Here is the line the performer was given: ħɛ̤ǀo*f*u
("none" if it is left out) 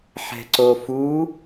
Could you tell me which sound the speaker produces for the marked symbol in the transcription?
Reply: f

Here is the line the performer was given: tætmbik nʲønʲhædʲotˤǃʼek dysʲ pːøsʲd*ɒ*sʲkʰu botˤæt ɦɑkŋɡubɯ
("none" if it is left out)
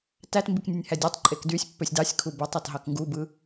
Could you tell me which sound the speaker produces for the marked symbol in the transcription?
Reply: ɑ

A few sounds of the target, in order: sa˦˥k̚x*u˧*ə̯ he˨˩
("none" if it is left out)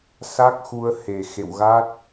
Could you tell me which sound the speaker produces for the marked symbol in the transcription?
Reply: u˧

